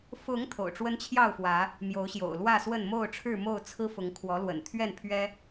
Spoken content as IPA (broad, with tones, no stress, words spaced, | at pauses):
fʊ˨˦ŋ t̪ʰo̰˨˩ʊ̯ʈ͡ʂwə˦nt͡ɕʰjɑ˥˨ʊ̯fwä˨˦ | mjo˨˦ʊ̯ɕjo̰˨˩ʊ̯lwä˥˨swə˥˨n mo˥˨ʊ̯ʈ͡ʂʰɻ̩˥˨ mo˥˨ʊ̯t͡sʰɹ̩˦fʊ˨˦ŋ kʰwɔ˨˦lwə̰˨˩nt̪ʰɥɛ˥˨n pʰɥɛ˦